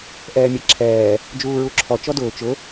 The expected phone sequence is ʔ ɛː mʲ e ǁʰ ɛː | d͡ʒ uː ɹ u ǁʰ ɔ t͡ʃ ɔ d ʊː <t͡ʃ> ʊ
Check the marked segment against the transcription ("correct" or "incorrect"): correct